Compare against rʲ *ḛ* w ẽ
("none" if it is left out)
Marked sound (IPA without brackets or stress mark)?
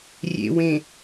ḛ